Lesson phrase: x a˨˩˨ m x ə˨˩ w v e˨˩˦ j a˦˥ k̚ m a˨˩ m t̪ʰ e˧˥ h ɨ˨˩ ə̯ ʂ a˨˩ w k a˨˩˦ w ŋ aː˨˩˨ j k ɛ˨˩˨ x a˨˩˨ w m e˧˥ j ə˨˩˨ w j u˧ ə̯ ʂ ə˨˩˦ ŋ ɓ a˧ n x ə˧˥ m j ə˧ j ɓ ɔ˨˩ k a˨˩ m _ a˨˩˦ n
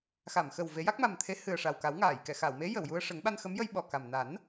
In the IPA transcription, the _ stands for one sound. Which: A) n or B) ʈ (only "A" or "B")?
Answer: A